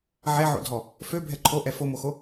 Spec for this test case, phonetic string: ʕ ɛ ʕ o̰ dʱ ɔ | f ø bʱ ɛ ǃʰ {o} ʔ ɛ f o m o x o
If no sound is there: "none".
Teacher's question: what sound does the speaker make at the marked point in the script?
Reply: o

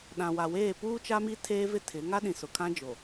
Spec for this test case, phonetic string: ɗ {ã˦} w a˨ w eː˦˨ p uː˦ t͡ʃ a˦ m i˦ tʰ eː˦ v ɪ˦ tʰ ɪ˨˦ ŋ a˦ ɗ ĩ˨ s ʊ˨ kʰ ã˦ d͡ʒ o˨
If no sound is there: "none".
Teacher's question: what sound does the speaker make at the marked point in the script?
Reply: ã˨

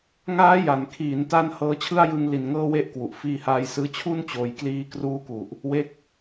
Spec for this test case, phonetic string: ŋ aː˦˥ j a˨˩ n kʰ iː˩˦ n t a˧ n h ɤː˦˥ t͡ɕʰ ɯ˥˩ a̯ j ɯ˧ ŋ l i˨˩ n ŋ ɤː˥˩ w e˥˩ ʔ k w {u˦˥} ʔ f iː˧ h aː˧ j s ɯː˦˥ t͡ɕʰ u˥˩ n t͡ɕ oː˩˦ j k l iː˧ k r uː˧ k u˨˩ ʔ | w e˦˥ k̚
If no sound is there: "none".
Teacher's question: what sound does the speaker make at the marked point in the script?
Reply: u˨˩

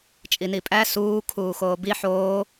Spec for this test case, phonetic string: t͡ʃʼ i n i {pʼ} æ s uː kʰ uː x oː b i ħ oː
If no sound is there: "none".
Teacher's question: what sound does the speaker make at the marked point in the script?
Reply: pʼ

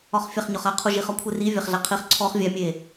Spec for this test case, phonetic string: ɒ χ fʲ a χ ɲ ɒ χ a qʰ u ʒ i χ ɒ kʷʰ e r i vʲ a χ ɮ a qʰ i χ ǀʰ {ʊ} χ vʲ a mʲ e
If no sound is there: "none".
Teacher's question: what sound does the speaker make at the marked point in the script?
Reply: ɔ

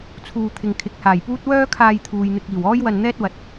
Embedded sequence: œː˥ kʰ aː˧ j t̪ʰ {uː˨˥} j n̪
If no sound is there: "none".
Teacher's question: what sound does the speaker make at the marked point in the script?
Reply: uː˨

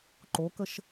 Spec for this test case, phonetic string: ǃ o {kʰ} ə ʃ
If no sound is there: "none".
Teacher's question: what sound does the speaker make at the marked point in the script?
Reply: k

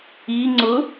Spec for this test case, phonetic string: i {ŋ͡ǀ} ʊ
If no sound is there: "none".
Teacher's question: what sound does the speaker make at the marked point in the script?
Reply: ŋ͡ǀ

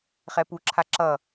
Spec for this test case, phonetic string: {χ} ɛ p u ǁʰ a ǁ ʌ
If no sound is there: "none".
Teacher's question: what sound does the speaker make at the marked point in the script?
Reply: χ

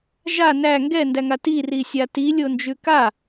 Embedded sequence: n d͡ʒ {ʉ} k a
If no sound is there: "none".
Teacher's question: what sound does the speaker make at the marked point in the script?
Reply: ʉ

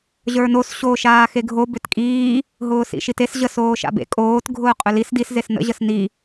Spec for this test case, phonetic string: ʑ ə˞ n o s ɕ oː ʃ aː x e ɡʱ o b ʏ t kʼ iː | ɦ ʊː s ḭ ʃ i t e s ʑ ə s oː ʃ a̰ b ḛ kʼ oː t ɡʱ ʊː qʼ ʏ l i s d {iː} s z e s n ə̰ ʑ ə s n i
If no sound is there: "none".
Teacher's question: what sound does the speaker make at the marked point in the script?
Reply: i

